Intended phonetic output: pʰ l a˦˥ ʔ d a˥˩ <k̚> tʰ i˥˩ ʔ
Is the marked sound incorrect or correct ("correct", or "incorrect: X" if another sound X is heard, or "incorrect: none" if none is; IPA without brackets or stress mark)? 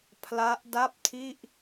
incorrect: p̚